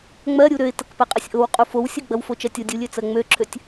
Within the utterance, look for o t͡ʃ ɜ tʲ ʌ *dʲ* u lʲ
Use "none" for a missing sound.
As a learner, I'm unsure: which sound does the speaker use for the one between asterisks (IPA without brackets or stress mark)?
dʲ